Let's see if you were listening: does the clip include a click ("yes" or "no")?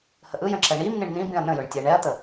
yes